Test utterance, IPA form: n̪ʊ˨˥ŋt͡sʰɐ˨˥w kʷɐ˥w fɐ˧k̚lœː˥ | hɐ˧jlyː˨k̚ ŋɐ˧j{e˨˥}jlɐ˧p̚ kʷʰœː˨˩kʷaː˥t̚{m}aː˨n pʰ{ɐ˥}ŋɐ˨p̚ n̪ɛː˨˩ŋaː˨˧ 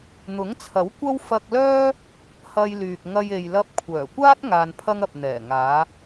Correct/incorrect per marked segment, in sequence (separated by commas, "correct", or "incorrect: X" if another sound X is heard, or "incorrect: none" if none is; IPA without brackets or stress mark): incorrect: e˨, incorrect: ŋ, correct